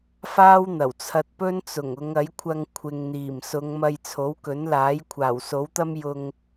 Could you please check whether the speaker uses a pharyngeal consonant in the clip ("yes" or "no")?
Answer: no